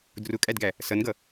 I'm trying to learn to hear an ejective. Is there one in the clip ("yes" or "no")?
yes